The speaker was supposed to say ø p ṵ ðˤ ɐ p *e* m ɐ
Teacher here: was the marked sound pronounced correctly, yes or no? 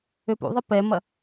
no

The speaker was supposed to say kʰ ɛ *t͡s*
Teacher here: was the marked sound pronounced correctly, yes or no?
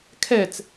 yes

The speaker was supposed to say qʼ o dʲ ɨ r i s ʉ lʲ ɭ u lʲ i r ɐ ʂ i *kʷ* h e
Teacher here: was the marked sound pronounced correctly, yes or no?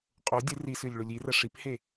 no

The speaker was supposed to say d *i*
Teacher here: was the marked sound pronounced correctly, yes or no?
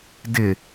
no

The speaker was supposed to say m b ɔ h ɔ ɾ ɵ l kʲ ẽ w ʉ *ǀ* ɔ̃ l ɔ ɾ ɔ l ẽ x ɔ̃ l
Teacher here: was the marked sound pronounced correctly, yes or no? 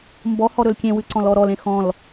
yes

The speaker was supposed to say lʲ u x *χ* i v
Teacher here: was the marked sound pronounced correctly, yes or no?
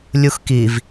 no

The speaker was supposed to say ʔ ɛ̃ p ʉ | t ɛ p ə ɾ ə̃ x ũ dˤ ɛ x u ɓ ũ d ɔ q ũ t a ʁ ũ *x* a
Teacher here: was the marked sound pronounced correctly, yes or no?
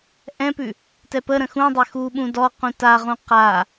no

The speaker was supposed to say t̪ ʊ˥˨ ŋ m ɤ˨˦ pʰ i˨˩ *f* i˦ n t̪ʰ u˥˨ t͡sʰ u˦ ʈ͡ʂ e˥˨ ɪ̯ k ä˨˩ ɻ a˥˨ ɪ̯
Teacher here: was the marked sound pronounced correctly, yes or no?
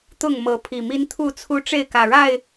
no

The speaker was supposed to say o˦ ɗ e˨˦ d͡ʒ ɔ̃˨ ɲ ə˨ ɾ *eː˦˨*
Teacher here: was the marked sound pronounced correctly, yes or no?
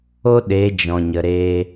no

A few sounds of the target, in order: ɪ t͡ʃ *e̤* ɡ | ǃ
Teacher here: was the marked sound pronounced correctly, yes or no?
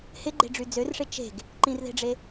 yes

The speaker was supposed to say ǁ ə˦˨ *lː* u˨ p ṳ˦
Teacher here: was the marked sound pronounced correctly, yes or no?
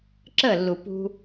yes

